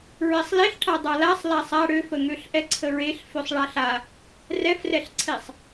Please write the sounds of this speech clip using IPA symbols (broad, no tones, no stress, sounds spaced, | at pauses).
ɹ ɛ sˤ l e ɬ ʈʰ a dˤ a l a sˤ l a sˤ a ɽ ø f ə ŋ ø ɬ ʔ ɛ ǀʰ ə ɹ e ɬ f ø sˤ ɭ a ɬ a | r ɛ f r ɛ ɬ ǀʰ e sˤ